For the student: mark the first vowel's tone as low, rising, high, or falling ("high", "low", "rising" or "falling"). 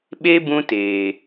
high